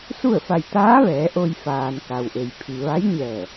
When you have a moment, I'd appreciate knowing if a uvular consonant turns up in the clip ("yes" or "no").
no